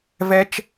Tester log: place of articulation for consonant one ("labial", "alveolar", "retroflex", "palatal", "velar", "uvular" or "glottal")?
labial